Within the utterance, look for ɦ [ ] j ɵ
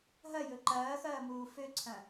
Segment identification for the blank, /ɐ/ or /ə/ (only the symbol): ɐ